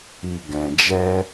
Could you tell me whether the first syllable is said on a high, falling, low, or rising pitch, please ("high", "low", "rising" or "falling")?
low